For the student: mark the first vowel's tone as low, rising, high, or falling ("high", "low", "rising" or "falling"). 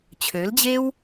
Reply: rising